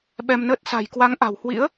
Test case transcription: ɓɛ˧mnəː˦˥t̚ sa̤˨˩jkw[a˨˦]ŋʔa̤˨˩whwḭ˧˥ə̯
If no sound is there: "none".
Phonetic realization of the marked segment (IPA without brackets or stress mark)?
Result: a˨˦